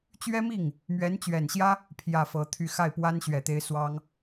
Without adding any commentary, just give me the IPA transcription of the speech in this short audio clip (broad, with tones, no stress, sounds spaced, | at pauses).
t͡ɕ ɥ ɛ˥ m i˥˩ ŋ | m ɥ ɛ˧˥ n t͡ɕ ɥ ɛ˨˩ n ɕ j ä˥ | pʰ j ä˥˩ f ɤ˧˥ t̪ʰ y˥˧ x a˥˩ ɪ̯ p w a˥ n ɕ ɥ ɛ˨˩ t̪ e˧˥ ɪ̯ s w ɑ˥ ŋ